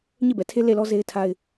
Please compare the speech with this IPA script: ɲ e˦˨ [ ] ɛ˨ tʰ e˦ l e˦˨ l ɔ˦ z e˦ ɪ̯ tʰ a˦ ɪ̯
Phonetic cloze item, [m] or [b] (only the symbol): b